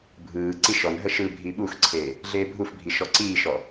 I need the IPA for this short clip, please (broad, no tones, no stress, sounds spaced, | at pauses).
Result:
bʱ ɯː ǀ i ʃ ɔ n ɦ ə ʃ ɯ bʱ i ɓ u x ǀʰ eː | ɮ eː bʱ u f bʱ i ʃ ɔ ǀ iː ʃ ɔ